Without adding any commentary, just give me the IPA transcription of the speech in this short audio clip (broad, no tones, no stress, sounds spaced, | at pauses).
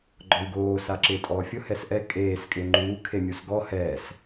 ɡ͡ǃ ɔ w ɡ oː s a ǁ ɪː tʼ ɔː fʲ ʊ h ɛ s ʔ ɛ kʼ eː s kʼ ɪː ŋ͡ǃ uː kʰ e mʲ u s ɡ ɔ h ɛ s